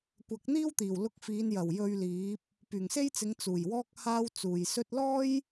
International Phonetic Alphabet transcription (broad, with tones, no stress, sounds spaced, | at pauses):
kʷ ɐ˨˥ k̚ n̪ iː˥ w t̪ iː˨˩ w l ʊ˧ k̚ f iː˨˧ n j ɐ˨˩ w j ɵ˧ ɥ l iː˨˥ p̚ | p yː˨˩ ŋ s e˥ j t͡s ɪ˨˧ ŋ t͡s uː˨˩ j w ɔː˥ k̚ h aː˥ w t͡s uː˨ j s ɵ˧ t̚ l ɔː˥ j